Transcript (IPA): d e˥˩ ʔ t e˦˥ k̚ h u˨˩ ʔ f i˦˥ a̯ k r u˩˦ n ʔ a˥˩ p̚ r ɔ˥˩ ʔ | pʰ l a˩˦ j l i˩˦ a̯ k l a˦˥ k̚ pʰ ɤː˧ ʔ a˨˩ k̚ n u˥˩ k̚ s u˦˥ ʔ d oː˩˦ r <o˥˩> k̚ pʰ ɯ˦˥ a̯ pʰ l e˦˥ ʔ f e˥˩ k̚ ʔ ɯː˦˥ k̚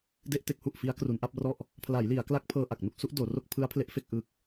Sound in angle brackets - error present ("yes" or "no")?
no